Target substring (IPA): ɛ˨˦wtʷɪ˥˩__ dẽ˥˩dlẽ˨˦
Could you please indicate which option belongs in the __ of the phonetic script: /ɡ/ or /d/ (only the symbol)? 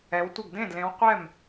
ɡ